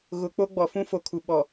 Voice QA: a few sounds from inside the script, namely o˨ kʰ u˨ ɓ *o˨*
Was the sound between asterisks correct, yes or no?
no